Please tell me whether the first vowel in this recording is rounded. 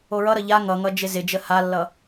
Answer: yes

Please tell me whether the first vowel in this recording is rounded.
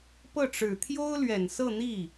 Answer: no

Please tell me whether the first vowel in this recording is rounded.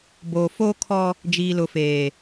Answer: yes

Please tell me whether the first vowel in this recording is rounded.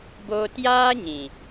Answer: yes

